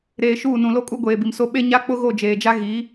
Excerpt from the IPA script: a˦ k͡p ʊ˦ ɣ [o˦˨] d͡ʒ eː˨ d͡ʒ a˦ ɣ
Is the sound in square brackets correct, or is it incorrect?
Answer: correct